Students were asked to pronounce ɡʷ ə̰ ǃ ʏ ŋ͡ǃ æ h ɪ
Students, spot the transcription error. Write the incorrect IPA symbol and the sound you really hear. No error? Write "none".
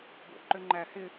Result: none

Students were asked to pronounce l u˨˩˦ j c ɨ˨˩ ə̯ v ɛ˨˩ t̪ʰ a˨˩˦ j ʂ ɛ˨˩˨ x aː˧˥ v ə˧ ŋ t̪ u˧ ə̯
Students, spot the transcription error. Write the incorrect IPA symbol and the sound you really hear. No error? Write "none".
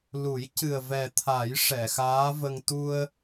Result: none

